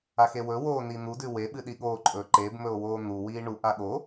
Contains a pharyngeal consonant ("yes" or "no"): no